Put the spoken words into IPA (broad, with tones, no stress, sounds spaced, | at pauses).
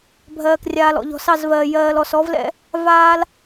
bʱ ɜː˨ k rʲ aː˨ l ɔ̰˨ ʎ ɔ̤˨ s ɑ˦˨ z v ɜː˨ j ɜː˨ l ɔ˨ s ɔ˦ v l ɛ̰˦ | v aː˦ l